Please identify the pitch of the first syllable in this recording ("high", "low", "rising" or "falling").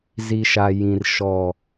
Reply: low